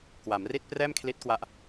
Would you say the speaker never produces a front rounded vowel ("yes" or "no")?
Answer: yes